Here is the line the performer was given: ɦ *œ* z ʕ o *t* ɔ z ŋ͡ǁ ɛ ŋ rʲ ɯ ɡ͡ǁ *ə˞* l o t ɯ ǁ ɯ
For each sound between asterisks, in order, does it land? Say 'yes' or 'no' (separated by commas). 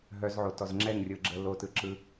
yes, yes, no